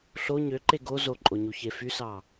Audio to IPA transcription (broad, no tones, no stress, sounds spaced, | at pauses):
ɬ o ɲ ø ǃ e ɡ o z o ǃʼ o ɲ u ç e f y s ɑ